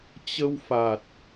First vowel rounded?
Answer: no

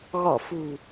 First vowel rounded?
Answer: yes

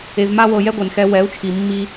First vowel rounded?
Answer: no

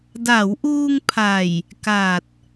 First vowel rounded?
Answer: no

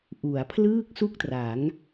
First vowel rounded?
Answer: yes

